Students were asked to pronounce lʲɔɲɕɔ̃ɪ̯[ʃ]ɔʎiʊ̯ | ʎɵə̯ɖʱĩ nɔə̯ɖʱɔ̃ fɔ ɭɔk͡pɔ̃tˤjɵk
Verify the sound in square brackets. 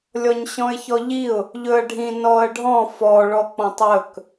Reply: incorrect: ç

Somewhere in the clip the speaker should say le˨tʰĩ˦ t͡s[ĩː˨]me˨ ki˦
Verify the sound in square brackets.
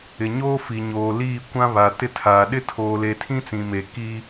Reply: incorrect: ĩ˨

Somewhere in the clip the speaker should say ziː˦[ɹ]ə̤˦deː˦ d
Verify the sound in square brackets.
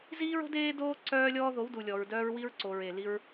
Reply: correct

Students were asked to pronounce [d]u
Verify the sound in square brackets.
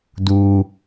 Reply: correct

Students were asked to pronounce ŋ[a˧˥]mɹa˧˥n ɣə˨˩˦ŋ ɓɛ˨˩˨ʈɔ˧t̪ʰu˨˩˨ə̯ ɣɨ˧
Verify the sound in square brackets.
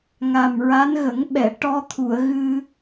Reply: incorrect: a˨˩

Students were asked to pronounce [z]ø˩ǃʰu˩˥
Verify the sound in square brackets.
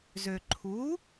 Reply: correct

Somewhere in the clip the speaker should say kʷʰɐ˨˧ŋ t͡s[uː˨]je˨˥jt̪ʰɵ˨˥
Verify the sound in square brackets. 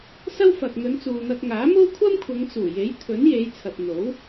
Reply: incorrect: uː˨˩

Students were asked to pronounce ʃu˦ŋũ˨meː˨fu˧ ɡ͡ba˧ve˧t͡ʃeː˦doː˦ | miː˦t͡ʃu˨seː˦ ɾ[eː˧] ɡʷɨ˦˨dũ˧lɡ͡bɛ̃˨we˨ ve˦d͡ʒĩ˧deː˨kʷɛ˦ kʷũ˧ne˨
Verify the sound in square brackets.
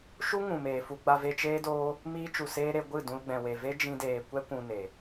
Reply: incorrect: e˧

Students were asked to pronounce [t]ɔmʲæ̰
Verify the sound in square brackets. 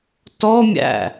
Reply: correct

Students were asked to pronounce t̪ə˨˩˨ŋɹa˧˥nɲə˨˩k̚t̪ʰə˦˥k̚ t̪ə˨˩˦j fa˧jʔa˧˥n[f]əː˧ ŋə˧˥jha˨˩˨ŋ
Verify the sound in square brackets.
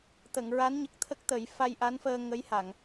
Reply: correct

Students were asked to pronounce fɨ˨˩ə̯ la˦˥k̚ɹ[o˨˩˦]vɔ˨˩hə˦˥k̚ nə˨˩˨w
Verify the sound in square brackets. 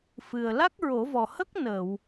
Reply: correct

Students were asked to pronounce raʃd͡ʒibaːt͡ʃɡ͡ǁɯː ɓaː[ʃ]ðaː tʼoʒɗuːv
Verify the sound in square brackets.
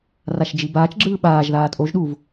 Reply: incorrect: ʒ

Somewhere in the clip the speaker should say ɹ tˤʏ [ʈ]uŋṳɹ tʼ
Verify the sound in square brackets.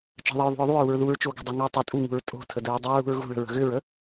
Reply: incorrect: tʼ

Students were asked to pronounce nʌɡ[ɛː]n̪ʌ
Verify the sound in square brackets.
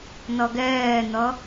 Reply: correct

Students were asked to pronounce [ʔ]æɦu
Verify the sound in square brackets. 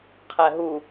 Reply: incorrect: qʰ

